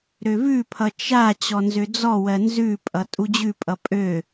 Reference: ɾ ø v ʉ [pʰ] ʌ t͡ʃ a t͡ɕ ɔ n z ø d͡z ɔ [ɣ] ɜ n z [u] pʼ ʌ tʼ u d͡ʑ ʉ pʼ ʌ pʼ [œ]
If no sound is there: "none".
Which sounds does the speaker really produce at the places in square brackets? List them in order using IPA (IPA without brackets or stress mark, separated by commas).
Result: pʰ, w, ʉ, ø